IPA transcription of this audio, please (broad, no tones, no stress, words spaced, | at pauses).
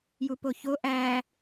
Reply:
jupoço ʔæ